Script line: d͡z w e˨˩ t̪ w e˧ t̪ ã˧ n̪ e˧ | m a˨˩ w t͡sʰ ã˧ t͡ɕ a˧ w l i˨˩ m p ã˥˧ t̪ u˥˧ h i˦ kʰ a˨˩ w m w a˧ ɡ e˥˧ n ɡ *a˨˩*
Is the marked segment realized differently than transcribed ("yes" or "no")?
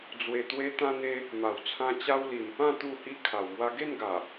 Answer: no